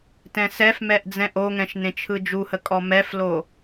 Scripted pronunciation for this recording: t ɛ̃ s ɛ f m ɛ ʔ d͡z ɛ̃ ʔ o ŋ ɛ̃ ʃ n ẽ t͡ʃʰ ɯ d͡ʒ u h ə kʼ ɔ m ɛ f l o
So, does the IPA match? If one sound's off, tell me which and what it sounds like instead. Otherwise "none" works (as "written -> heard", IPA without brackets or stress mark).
none